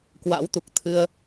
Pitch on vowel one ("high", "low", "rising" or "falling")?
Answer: rising